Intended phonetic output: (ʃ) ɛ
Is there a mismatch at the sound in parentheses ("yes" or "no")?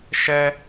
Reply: no